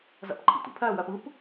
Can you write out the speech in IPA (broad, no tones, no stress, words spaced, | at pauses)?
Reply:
zæ̰pǃʰḭtʷḭpʰæ wæpɯp